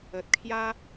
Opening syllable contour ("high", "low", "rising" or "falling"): low